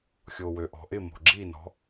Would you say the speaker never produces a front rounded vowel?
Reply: no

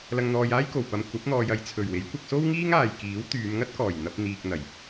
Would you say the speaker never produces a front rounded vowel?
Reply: no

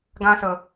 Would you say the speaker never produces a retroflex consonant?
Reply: yes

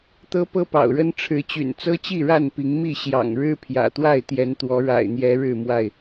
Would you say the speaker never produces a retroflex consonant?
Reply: no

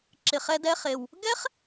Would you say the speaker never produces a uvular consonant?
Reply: no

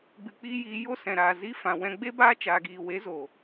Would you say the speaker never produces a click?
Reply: yes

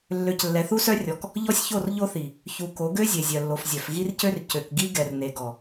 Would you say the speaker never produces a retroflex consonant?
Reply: yes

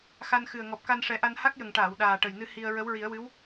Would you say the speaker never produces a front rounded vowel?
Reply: yes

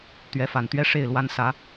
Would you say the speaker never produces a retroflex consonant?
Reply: no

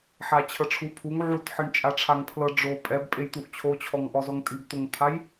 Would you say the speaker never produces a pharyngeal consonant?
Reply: no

